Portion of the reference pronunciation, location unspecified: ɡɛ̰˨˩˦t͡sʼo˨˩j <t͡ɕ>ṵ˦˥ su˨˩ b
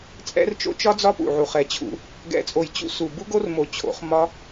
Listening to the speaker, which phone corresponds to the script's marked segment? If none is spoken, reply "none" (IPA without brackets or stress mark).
t͡ɕ